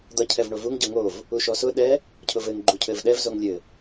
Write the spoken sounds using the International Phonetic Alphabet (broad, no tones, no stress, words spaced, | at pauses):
d̪ʌ cʰɛvɳovuŋ ɟʌŋov | uʃɔsʊ ɗɛ | cʰʊvɘŋ ɡ͡ǃucʰɘvɗɛv zoŋlʲɘ